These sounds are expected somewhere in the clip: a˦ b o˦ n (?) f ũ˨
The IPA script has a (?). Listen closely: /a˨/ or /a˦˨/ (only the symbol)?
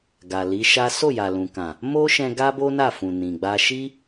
a˦˨